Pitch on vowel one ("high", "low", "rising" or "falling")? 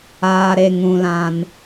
high